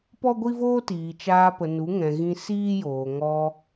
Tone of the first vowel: high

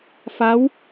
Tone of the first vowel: rising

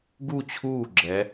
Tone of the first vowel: falling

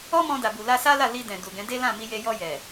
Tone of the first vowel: high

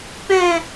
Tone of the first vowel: falling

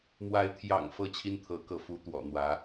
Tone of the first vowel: rising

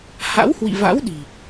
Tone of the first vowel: rising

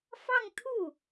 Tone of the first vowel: falling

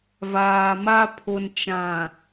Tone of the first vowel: low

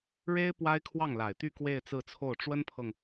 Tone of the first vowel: high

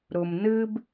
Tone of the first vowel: low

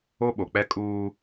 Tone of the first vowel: high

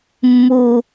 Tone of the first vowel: low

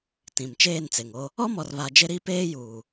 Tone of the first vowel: low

